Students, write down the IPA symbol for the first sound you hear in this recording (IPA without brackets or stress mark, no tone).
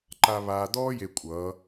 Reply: ǃ